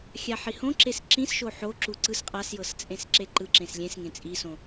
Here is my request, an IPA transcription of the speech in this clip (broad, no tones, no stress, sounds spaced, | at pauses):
xʲ a ħ i h õ ǁ e s ǁ ĩ s ʃ o ħ o ǁ u ǀ ɯ s qʼ a s j ɤ s t͡sʼ ẽ s ǁ e ǃ ɯ ǁ ẽ s lʲ ẽ s ŋ ẽ t͡sʼ i s õ